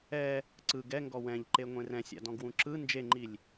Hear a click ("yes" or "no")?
yes